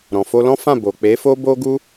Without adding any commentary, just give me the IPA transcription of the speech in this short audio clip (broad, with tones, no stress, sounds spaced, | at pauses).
ɾ ɔ̃˨ f o˧ l ɔ̃˦ f ã˦˨ b o˨ k͡p e˨˦ f o˦ b o˦ ɡ u˦